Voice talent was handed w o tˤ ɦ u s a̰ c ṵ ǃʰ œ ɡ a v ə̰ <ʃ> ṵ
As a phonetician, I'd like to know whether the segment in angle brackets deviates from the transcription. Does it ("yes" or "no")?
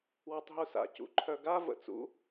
yes